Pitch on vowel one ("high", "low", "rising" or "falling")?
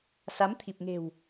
rising